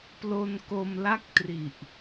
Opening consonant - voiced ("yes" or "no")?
no